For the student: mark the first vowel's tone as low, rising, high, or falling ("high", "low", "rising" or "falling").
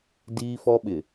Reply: high